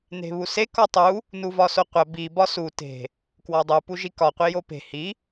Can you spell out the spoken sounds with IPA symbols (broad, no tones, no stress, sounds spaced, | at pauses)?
n e̤ β u s e k ɒ tˤ u | n u v ɒ s o qʷ æ b i b ɒ s u t e̤ | k w ɒ dˤ u p u ʒ i k ɒ qʷ i j o p e̤ h i